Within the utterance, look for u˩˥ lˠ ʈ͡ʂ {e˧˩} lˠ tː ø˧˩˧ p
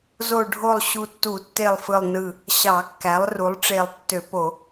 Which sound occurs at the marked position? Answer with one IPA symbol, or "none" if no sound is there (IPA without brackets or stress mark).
e˧˩